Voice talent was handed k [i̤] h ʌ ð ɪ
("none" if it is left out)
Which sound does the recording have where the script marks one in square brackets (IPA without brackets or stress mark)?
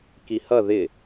i